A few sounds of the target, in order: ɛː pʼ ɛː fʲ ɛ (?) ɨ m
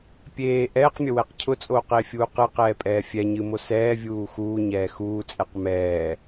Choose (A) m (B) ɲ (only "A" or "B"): B